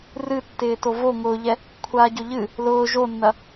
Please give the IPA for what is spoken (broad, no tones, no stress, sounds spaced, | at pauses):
r ɨ tː ɪː t o v o ŋ ʊː ʎ ɛ | kʷʰ aː ɟ ʊ ʎ ɨ | l ʊː ʒ o nː ɐ